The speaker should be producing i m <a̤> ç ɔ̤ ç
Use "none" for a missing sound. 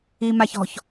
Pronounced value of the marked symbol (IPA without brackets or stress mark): a